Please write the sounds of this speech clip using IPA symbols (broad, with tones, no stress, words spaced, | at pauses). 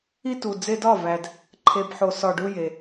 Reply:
i˦tu˨ d͡ze˧dɒ˦˨væ˨d | ǃʰe˨bħo˨ sɒ˨ɖu˧ je˨